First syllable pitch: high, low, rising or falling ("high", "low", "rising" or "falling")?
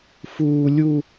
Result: high